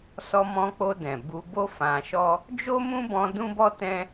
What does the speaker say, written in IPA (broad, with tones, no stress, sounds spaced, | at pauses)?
s ɔ˧ m ɔ̃˧ k͡p o˧ d ɛ̃˨ b u˧ b o˦ f ã˧ ʃ ɔ˦ | d͡ʒ o˦ m ũ˦ b ɔ̃˧ d ũ˦ b ɔ˦ t ɛ̃˦